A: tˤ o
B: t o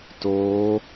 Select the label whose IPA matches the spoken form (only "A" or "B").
B